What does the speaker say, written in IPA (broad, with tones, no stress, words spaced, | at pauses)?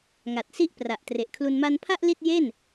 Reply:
ŋa˨˩t̚si˥˩ʔpra˨˩ʔ tre˨˩ʔkʰlu˧n ma˧npʰa˥˩ʔ li˥˩t̚je˥˩n